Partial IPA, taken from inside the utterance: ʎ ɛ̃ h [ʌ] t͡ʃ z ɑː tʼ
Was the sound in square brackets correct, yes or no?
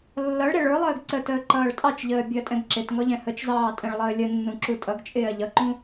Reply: no